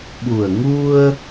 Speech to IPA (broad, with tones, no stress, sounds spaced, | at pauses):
ɓ u˨˩ ə̯ ŋ u˧ ə̯